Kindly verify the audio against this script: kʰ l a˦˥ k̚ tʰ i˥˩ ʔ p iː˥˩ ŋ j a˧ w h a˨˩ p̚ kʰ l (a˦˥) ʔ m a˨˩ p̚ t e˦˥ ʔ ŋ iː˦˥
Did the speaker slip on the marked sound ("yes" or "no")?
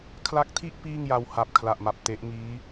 yes